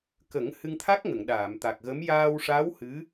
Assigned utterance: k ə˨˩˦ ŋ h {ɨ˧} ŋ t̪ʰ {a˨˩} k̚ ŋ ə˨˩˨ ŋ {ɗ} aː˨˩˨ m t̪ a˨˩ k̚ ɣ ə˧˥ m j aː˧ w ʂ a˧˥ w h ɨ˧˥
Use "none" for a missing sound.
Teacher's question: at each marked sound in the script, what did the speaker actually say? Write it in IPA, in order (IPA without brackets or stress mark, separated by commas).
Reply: ɨ˧, a˦˥, ɗ